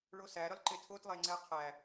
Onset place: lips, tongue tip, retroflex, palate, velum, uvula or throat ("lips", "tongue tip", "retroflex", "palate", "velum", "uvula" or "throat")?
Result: retroflex